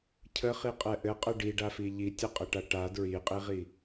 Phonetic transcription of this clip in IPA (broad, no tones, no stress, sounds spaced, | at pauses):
cʰ ə χ i qʼ ɛ ʔ ɘ qʼ ə ɖ i ɖ a f i ʎ i tʲ ɘ qʼ ɘ ʈ a ʈ a d ɹ i qʼ i ʁ i